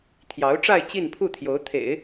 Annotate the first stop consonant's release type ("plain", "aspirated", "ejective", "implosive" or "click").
aspirated